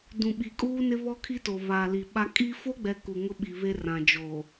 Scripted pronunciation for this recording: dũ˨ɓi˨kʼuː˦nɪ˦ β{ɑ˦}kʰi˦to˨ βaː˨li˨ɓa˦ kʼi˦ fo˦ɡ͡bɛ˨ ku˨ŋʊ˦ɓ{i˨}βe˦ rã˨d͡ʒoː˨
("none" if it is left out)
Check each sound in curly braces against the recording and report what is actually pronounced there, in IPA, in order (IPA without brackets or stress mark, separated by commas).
ɔ˦, i˨